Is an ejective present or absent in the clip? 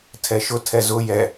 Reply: absent